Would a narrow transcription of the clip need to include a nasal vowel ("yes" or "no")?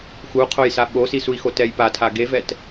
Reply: no